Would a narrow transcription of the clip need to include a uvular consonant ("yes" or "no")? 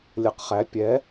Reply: yes